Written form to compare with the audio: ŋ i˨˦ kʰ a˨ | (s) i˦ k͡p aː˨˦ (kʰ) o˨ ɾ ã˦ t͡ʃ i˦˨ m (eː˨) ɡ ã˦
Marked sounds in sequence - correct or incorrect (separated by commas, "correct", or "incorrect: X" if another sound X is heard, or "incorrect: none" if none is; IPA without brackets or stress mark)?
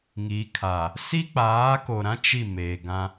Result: correct, incorrect: k, correct